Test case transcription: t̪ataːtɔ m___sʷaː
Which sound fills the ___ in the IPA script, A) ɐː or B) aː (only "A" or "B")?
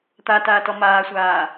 B